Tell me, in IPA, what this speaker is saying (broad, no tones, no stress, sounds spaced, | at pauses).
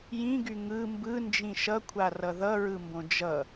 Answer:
j ĩ ɡ y ŋ ɯ m b ɯ n d͡ʒ ĩ ʃ ʌ kʷʰ a r ʌ ð ʌ ɹ ɯ m b õ d͡ʒ ʌ